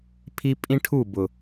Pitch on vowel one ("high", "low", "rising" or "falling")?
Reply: high